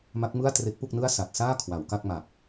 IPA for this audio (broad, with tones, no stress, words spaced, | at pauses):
ma˦˥k̚mɯ˥˩a̯tre˦˥k̚pu˥˩k̚ nɯ˥˩a̯ sa˨˩t̚saː˥˩ kʰwa˩˦wka˥˩k̚ma˨˩p̚